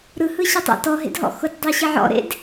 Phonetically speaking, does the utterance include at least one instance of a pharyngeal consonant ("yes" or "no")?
yes